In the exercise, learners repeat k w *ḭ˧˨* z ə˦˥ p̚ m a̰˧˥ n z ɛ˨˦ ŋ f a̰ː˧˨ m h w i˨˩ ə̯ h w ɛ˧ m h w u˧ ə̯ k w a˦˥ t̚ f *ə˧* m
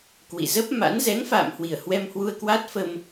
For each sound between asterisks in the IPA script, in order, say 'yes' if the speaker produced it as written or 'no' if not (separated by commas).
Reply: yes, yes